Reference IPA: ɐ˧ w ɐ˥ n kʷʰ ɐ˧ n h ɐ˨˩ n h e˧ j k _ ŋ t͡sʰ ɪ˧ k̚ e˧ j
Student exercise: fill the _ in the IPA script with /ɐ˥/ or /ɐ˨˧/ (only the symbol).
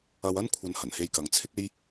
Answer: ɐ˨˧